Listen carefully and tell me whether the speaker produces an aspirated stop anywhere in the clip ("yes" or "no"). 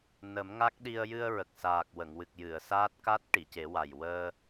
no